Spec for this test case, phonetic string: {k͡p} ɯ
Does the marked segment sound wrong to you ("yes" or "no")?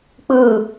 no